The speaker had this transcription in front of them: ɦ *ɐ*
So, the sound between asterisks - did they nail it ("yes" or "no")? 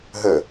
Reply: no